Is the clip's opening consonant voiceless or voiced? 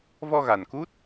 voiced